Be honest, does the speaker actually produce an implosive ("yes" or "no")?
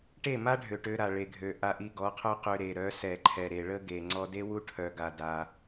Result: no